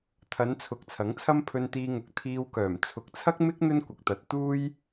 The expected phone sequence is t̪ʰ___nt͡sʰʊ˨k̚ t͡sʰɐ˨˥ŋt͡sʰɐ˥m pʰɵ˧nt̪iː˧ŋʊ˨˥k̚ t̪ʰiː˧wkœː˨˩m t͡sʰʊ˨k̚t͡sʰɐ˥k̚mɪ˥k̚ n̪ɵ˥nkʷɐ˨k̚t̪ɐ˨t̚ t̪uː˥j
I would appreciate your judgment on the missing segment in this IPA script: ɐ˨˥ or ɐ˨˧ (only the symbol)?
ɐ˨˧